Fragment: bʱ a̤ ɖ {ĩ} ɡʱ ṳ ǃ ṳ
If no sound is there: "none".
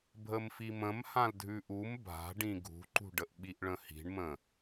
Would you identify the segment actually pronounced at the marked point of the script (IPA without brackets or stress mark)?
ĩ